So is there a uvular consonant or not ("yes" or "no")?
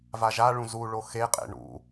yes